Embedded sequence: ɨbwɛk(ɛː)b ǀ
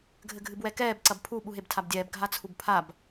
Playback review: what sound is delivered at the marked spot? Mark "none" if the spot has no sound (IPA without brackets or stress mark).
ɛː